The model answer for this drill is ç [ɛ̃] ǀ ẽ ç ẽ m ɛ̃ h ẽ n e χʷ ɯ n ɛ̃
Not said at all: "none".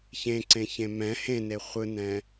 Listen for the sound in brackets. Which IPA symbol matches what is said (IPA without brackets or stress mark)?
ẽ